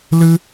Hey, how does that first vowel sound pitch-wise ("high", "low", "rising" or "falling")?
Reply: high